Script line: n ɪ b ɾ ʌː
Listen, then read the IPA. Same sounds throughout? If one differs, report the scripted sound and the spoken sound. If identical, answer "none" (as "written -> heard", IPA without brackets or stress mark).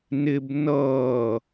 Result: ɾ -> n